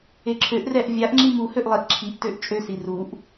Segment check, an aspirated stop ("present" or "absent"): present